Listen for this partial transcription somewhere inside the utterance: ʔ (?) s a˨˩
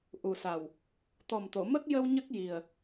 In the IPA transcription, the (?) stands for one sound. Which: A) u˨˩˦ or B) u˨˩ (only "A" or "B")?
B